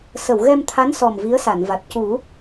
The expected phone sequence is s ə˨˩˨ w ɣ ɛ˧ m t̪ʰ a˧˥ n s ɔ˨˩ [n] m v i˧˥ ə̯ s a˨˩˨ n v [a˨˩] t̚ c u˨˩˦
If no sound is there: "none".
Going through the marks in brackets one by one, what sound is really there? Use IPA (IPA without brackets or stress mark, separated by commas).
none, a˨˩